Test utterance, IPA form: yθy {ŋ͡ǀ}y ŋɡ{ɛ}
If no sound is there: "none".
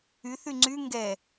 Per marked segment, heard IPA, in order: ŋ͡ǀ, ɛ

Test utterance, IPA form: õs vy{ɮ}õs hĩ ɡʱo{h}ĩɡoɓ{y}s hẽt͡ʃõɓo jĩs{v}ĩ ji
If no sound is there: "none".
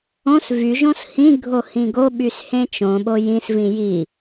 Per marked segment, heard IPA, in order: ʒ, h, y, v

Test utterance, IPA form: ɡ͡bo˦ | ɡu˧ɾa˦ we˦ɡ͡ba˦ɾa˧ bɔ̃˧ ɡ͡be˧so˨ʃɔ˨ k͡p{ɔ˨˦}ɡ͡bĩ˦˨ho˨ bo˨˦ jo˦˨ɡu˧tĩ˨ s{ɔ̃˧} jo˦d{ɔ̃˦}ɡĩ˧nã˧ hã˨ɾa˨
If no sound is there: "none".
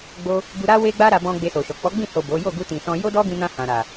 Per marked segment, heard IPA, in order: ɔ˨˦, ɔ̃˧, ɔ˦

